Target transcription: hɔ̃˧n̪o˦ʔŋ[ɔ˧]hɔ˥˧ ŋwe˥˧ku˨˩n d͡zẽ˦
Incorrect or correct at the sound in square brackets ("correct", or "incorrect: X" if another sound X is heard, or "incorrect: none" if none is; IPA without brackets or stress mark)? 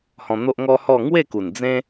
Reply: incorrect: ɔ˦